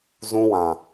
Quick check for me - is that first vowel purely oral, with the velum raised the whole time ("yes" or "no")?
no